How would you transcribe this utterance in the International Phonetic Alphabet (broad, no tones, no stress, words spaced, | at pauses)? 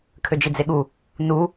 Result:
kʰød͡ʒid͡zeɠu | nu